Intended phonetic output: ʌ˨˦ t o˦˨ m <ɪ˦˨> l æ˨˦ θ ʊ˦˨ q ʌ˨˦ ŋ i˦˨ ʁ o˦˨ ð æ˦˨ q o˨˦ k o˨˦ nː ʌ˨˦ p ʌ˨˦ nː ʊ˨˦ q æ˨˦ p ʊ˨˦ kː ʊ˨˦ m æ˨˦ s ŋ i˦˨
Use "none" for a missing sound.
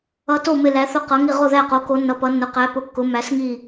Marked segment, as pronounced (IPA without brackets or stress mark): ɪ˦˨